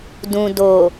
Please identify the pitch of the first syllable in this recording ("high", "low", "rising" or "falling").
low